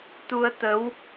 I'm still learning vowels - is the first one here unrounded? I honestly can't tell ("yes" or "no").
no